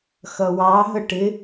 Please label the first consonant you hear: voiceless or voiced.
voiceless